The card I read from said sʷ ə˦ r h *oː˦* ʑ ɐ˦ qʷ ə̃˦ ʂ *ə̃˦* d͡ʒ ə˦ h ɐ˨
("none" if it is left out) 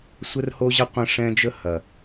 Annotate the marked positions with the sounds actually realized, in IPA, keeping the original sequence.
o˦, ɛ̃˦

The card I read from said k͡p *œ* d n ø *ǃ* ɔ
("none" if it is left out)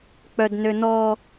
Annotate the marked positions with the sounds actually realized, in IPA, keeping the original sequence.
œ, n

